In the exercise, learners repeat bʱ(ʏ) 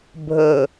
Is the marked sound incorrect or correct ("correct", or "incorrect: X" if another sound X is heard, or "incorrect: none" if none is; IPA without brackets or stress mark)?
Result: incorrect: ə